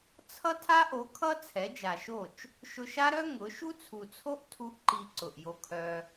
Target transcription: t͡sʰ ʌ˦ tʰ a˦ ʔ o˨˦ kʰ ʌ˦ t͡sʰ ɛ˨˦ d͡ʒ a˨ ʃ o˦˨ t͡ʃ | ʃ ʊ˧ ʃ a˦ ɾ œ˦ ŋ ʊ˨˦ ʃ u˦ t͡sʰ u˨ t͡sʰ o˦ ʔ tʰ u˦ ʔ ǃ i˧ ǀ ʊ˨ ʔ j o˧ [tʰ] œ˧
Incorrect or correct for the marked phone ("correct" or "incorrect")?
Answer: incorrect